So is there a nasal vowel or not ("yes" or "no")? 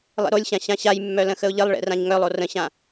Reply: yes